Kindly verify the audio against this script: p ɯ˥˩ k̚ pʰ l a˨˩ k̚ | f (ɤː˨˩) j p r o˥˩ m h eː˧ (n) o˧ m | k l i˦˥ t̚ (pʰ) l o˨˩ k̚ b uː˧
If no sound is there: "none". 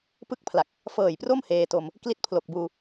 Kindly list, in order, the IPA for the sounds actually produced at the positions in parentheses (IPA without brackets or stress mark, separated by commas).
ɤː˨˩, t, pʰ